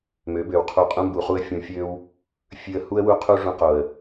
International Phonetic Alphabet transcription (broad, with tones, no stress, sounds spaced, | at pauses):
m ø˨˦ b ø˨ w qʰ u˧ qʼ ũ˧ m b u˨ χ u˧ ə̯ fʲ ũ˧ fʲ ø˦ w | fʲ ʉ˧ ə̯ h u˦ ə̯ w u˦ qʰ u˦ ʐ ũ˧ q o˨ ə̯